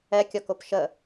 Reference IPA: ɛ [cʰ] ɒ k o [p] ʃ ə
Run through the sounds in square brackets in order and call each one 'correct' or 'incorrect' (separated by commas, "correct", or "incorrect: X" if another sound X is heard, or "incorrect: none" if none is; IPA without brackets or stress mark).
incorrect: kʲ, correct